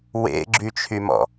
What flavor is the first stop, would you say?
click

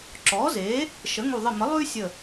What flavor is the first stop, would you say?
click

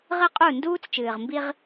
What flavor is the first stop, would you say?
ejective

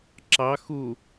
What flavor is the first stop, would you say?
click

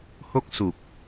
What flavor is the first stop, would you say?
plain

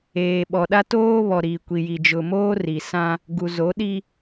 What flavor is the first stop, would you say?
implosive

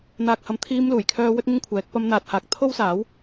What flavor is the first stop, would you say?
plain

